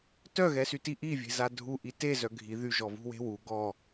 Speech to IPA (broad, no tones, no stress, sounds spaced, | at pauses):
t œ ɣ ɛ s y t i ʔ i vʲ e̤ z a dʱ u ʔ i t e z œ ɡʱ i ð y ʒ ɔ v ṳ w e̤ w u ɡ ɔ